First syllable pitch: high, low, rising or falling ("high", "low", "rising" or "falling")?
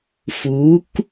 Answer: rising